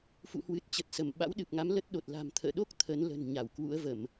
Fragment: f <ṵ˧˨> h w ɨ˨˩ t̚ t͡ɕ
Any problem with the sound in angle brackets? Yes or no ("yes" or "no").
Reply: no